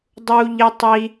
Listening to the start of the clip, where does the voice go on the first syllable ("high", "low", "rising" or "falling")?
high